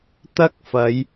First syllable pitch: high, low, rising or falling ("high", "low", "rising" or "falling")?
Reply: high